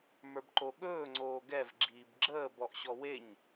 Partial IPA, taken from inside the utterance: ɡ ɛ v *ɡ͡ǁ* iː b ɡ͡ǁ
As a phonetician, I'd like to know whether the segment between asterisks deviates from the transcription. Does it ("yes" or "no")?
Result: no